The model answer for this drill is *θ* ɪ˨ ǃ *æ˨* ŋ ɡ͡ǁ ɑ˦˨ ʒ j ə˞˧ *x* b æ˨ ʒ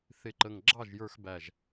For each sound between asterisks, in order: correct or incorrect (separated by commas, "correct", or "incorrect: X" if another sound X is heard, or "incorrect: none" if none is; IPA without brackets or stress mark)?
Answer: correct, incorrect: ə˨, correct